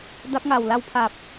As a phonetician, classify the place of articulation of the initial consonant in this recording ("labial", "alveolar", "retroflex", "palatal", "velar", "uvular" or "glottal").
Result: alveolar